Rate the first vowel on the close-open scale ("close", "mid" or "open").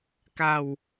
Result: open